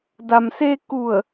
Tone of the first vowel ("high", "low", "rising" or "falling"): low